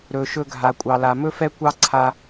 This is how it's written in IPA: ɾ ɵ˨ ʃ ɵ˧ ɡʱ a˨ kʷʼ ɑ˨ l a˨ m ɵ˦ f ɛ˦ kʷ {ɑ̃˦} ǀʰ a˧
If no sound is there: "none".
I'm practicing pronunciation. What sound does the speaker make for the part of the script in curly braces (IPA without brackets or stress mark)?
ɑ˦